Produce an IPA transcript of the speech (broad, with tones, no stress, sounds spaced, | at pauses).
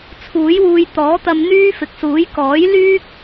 t͡sʰ uː˨˥ j w uː˧ j t̪ ɔː˨˥ t̪ ɐ˧ m n̪ yː˥ f ɪ˨ k̚ s uː˨˥ j k ɔː˨˥ j l yː˥ k̚